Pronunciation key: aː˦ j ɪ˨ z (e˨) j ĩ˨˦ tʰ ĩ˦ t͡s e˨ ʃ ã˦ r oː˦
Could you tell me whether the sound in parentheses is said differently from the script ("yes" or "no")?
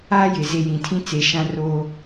yes